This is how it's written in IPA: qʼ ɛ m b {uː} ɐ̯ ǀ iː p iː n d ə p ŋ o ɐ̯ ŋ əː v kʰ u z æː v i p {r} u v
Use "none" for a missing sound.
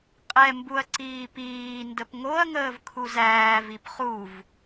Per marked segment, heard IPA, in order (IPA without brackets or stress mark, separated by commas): u, χ